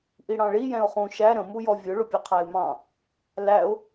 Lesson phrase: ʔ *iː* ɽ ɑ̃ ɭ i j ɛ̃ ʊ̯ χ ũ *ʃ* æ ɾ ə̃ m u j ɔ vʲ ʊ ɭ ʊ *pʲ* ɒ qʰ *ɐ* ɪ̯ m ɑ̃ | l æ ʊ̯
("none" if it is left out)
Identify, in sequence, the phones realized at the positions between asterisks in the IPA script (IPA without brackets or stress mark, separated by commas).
i, ʃ, pʲ, æ